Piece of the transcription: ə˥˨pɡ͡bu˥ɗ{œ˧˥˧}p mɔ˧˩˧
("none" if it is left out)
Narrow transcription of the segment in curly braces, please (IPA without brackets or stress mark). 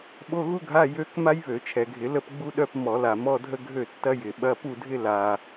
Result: œ˧˥˧